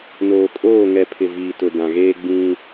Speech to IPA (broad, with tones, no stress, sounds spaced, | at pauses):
n oː˨ kʼ oː˦˨ ŋ ɛ˨ pʰ ɪ˨ v iː˨ t ʊ˨ d ã˨ ɣ eː˦ ɡ͡b ĩ˦